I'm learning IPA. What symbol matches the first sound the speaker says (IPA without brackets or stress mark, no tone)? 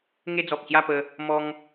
ŋ